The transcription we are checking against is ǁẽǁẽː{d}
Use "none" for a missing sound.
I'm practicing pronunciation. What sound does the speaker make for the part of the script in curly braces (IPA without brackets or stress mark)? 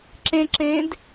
d